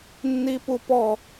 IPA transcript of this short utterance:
nːipupɔ

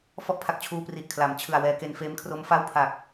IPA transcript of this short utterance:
fɔ˥˩ʔpʰa˨˩k̚t͡ɕʰuː˧ pri˨˩ʔkʰla˩˦m t͡ɕʰɯ˨˩a̯wɛː˧ke˧n feː˦˥mkʰro˦˥mfa˥˩w pʰa˨˩k̚

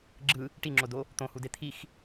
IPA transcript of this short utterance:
ɡ͡ǁɯ | ʈiŋ͡ǁodo | t̪õhude t̪ʰix

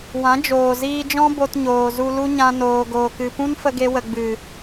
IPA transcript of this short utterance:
wã˨˦d͡ʒoː˨ ziː˧d͡ʒɔ̃˦ bo˧tɲoː˨zu˧lu˦ ɲã˧noː˨ɡoː˨kɨ˨ pũ˦nfə˧ɡe˧wə˨ ɡ͡bɨ˨

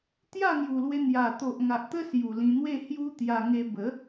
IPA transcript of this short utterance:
t̪ja˥˧ŋju˨˩lwe˧n̪ja˨˩ t̪o˨ʔŋa˨ʔt̪ə˦ sju˨˩lĩ˧n̪we˥˧ hju˦t̪ja˧ŋe˧ bə˨˦

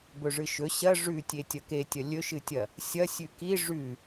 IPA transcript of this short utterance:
bɵʐɨʃɵ ɕɐ ʐʉtʲe tʲɐketʲɐ lʲɵʃɨtʲɐ | sʲɐ sʲʉki ʐʉ

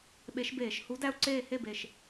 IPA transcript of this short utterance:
ɓe˨˦ʃbeː˧˩˧ʃ hu˨˦dæ˦˨u̯ǀeː˦˨ he˦˨be˨˩ʃ

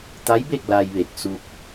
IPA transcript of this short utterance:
t̪a˧˥jbe˥˨k̚ la˧jʋe˧˩k̚ su˧k̚

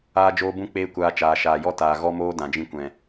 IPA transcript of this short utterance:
aː˦d͡ʒoː˦bũ˦k͡peː˦ kʷaː˧t͡ʃaː˨ʃaː˨jɔ˦ taː˨ ɣɔ˦moː˦ dã˨d͡ʒĩ˧kʷɛ̃˨

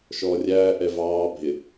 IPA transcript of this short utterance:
ʃɔːrʲæː ʔɛvɑː bʱɪ

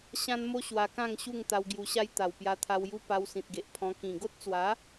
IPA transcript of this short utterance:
ɕã˦nmo˦ ɕwa˧kã˥˧ŋɕu˥˧ŋ t̪a˧wɡju˧ɕa˦j t̪a˨˩wpja˧t̪ʰa˧wju˦ pa˧wsĩ˨t̚ɡe˨ʔpʰɔ̃˧ kĩ˨˩ɡo˦t̚t͡swa˨˦

